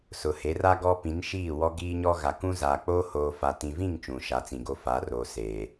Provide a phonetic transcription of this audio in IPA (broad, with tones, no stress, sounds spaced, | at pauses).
s ʊ˨ h e˨˦ r a˦ ɡ ɔ˦ p ĩ˨˦ n ʃ iː˦˨ w ɔ˦ ɡ iː˦ ɲ ɔ˦ ɣ a˨ k ũ˦ z aː˨ k͡p oː˦ h oː˨ f a˨ t ĩ˨ v ĩ˦˨ ŋ t͡ʃ ũ˨ ʃ a˨˦ t͡s ĩ˨ ɡ o˦ f a˨˦ r oː˨ s eː˨